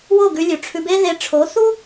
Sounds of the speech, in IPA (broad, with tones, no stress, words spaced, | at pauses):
wo˥˩ɡʉ˧lʲʉ˩ ʈ͡ʂʰʉ˧be˥ðe˧ ʈ͡ʂʰo˩˥θu˥